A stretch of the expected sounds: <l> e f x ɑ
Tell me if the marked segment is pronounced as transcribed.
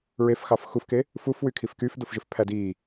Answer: no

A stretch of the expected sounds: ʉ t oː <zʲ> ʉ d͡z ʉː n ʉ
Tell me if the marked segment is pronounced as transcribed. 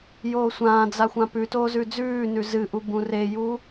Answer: no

